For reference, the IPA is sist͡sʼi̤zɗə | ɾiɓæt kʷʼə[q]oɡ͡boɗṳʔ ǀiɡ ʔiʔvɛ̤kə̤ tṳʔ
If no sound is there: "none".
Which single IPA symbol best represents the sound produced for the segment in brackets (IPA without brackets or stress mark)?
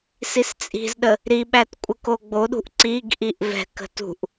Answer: k